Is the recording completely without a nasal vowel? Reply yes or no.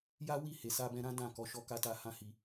no